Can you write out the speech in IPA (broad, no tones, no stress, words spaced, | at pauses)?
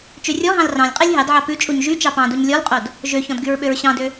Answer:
t͡ʃørʲɔɦɑ̃l rɑ̃lʲqʼelʲ ɦɑdʕɑ pʉt͡ʃʼuɲ ʒy t͡ʃɑpɑ̃duɲ lʲɔlqʼod | ʒøçɔ̃d ɡyɹɓøɹɕɑ̃dø